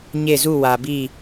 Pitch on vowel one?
falling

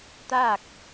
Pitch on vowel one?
falling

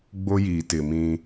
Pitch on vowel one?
high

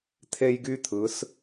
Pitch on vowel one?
high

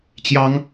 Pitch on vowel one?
high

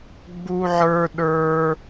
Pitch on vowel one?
high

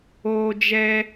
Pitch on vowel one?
high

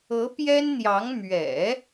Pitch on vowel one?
rising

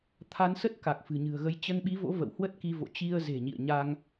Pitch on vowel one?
rising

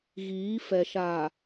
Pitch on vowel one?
rising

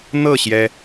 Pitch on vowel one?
falling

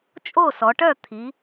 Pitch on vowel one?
falling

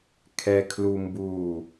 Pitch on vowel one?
high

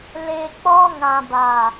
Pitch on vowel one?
low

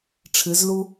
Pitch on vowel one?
rising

